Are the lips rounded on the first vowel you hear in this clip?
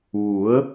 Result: yes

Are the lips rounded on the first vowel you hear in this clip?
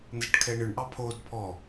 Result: no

